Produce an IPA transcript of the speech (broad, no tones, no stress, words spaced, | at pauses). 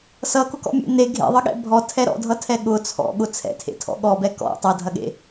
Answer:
sʌkʊkɔ̰mʲḛ ne ɡʱḛðˤʌɠɛ̰ bʱɔtʰɛ ɾɔ̰dʱʌtʰɛ ɠʊ t͡sʰɔ̰ɠʊ t͡sʰɛ̰tʰḛtʰɔ̰ ɠɔbɛ kɔ̰ tˤʌdʱɐɠḛ